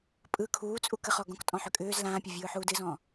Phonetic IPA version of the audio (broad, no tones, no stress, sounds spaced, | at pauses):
pʼ ɯ kʰ uː t͡sʼ u k ə χ ɔ ɡ ɔ̃ k tʼ ɔ̃ ħ ʏ kʼ ʏː z l ãː pʲ ʊ vʲ ɯː ħ uː d ɨ z ɔ̃